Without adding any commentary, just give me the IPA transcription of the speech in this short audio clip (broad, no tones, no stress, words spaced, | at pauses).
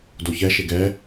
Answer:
doçɛʃe ɡɛ